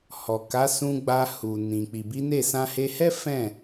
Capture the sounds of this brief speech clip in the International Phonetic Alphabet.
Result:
h ɔ˨ k a˨˦ s ũ˧ ɡ͡b a˧ h u˨ n ĩ˨ k͡p i˨ b i˨˦ n e˦˨ s ã˧ h e˧ h ɛ˦ f ɛ̃˦˨

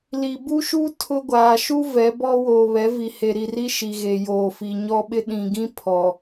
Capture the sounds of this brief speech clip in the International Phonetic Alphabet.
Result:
l i˨ b u˦ ʃ u˦ tʰ ʊ˦ ɡʷ aː˨ ʃ u˦ v ɛ˨˦ b ɔ˦ w oː˨ β ɛ˨˦ v i˨ h e˨ ɾ i˨ r i˦ ʃ i˨ ɣ e˨ j oː˨ f i˨ ɲ ɔ˦ ɓ ɪ˦ ɗ ĩ˨ ɡ ĩ˦ pʰ ɔ˨

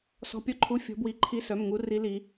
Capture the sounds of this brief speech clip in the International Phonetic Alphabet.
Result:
s ɔ̤˧˥˧ pʲ ɔ˦˥ ǃʰ u˧˥˧ fʲ ɔ̤˦˥ b w i˦˥ ǃʰ i˦˥ s œ˧˥˧ m ŋ u˦˥ r i˦˥ l i˦˥

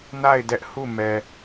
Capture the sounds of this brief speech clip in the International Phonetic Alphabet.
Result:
n a˦˨ ɪ̯ d ɛ˦ ʔ h u˦˨ m ɛ˨

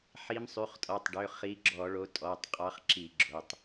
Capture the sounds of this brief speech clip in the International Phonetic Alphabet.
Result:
ħ i˨˦ m sˤ y˩˧˩ χ tʼ ɔ˩˧˩ tˤ ɖ ø˩˧˩ χ i˨˦ ɡ͡ǁ ɔ˧˩˧ ɭ o˨˦ tʼ ɔ˩˧˩ tˤ qʼ ɑ˨˦ χ ǁ i˧˩˧ ɡ͡ǁ o˩˧˩ tˤ

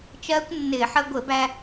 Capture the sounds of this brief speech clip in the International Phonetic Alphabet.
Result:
t͡ʃ ɜː˦˥ kʷ nː ɪː˧˩˧ ħ ə˧ ɡʷ ɪ˧˩˧ b æ˧

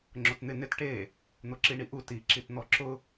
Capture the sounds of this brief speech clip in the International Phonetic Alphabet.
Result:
ŋ͡ǁ o t n̪ ɪ n ɪ t ʈ e | n̪ o ǁ i ɳ i ʔ u t i ǁ i t n̪ ɔ ǁ ʊ

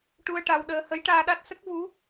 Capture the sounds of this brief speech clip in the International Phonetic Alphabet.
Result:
ʈ u˧ ə̯ ʈ a˧ w ɗ əː˧ h ə˧˥ j ʈ aː˧ ɗ a˦˥ t̚ s ə˦˥ k̚ v u˧˥

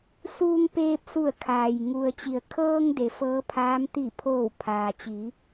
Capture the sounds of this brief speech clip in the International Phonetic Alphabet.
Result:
s uː˧ ŋ p eː˧ p̚ s u˧˩ ə̯ kʰ aː˩ j ŋ u˩ ə̯ t͡ɕ i˩ ə̯ kʰ ɤː˧ ŋ d e˩˧ f ɤː˧˥ pʰ aː˧˥ m t̪ i˧˩ pʰ oː˧˩ w pʰ aː˩ t͡ɕ i˩˧

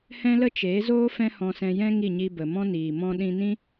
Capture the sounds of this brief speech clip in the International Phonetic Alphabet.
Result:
h ɛ̃˦ l ə˦ t͡ʃ eː˨˦ z oː˦ f ɛ̃˦ h ɔ̃˧ s ɛ̃˧ j ɛ̃˦ ŋ i˦˨ ɲ i˧ b ə˨ m ɔ̃˦ n iː˨ m ɔ̃˧ ɗ ĩ˧ n ĩ˦

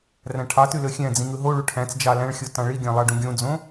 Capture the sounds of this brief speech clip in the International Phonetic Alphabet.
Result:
r æ̃ ʈʰ ɑ t y l ø xʲ æ̃ d͡z ĩ ŋ ɯ ɦ o ɭ u ʈʰ æ̃ t͡s d͡ʒ ɑ l æ̃ ɭ xʲ o t ɑ̃ ɭ i ɡʲ æ̃ lˠ ɑ ɖ ũ ɡʲ õ d͡z õ

